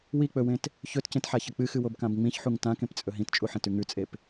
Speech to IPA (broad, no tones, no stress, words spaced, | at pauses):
wik͡pɵwẽt | çɵtcẽtħaçɐ k͡pɨxɨwobkãb ŋ͡mĩçħuŋ tãkẽpt͡sʼɵ ɦĩtt͡ʃʼuħẽtʉ ŋʉt͡sʼep